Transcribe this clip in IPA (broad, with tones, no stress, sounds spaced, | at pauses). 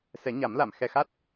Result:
s ɛ˨˩˦ ɲ a˨˩˦ m l a˨˩˨ m x ɛ˨˩ x a˦˥ t̚